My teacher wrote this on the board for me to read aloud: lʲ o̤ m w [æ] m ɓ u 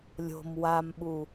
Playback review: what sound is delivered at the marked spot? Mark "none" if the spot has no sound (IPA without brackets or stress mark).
a